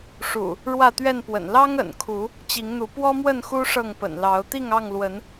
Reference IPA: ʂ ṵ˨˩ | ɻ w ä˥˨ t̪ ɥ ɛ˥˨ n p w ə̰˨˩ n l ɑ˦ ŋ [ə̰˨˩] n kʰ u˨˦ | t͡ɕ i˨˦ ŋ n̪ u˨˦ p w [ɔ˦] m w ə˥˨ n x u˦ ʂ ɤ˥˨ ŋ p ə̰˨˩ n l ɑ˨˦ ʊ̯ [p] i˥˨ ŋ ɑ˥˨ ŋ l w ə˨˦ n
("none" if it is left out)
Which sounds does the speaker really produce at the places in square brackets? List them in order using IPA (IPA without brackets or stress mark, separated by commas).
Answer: ə̰˨˩, ɔ˦, t̪